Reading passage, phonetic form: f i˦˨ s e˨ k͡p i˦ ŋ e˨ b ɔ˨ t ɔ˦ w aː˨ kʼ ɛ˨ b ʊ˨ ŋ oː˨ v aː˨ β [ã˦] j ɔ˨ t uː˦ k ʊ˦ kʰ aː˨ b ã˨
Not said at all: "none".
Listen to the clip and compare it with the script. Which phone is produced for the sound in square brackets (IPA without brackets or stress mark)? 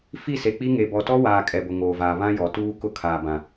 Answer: ã˦